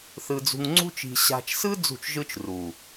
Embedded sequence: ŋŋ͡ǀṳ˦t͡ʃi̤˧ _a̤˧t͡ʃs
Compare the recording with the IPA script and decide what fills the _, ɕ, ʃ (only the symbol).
ɕ